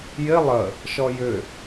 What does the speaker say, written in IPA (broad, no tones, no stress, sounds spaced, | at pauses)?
j ɪ lˠ ə | ʃ ɔ j ʏ